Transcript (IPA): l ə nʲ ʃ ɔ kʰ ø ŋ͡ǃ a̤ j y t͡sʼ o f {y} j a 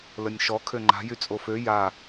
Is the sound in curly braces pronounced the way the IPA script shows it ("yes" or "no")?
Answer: no